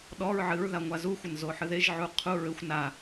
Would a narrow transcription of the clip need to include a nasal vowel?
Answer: no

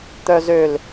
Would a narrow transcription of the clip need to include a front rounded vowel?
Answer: yes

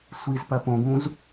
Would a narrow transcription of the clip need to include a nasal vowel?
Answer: yes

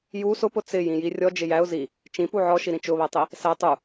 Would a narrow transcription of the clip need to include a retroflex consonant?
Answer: no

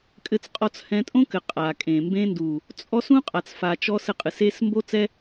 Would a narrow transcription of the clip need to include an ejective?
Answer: yes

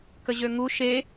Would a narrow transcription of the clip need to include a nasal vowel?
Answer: no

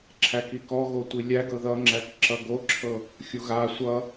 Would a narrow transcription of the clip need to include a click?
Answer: yes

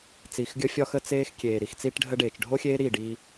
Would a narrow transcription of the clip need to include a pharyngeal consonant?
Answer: no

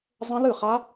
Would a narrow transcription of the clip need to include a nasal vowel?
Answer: yes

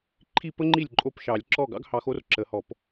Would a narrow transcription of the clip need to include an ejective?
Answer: yes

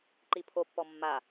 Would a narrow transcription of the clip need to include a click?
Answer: yes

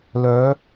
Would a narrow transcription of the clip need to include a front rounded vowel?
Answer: yes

